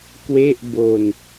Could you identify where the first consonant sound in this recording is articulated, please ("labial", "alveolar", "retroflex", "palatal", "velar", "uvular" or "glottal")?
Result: velar